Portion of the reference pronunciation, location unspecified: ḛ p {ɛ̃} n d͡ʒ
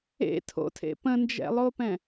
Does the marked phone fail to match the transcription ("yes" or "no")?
yes